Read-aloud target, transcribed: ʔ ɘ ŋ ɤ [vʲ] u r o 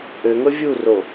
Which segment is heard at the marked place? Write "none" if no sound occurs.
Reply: vʲ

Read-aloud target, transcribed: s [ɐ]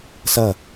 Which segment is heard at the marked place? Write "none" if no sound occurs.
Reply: ɐ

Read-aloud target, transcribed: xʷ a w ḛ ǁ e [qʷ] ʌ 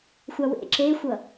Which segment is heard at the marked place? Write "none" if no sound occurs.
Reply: xʷ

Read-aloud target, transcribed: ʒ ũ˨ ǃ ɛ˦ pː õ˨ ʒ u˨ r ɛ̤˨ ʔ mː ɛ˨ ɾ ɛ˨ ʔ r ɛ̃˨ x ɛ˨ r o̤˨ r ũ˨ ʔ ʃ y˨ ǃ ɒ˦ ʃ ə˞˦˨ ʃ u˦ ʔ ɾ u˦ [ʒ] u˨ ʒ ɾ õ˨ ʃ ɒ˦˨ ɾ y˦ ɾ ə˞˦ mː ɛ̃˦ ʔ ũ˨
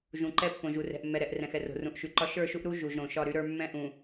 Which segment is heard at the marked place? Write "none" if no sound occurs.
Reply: ʒ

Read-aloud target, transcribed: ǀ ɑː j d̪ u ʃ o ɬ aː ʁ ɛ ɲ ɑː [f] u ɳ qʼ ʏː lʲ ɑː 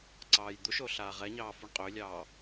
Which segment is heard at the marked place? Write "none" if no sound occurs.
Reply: f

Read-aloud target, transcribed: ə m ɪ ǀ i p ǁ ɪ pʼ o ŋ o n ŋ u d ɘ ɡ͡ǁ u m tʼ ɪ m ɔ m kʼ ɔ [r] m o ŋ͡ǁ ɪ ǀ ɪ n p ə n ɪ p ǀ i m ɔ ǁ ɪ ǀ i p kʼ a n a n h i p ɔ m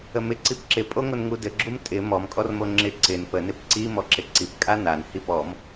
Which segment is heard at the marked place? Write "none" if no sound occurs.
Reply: r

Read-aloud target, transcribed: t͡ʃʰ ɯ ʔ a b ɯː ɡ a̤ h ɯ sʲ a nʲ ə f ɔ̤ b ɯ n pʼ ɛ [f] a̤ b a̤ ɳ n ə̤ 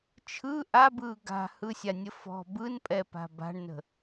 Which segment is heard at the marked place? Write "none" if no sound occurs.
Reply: p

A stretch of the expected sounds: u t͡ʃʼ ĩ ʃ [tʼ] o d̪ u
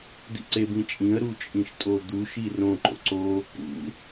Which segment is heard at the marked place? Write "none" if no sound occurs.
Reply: tʼ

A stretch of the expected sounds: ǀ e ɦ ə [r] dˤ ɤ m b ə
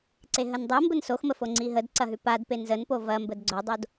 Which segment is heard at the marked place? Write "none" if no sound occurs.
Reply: n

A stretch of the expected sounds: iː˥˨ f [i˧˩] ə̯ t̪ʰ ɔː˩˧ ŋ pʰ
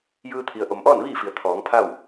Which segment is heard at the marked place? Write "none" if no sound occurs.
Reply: i˩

